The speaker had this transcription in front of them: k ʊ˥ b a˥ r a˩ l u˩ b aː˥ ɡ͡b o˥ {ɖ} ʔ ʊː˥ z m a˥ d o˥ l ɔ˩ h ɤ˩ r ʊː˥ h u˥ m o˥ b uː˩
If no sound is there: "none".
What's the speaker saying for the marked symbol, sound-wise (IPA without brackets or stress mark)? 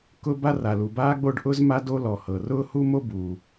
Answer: ɖ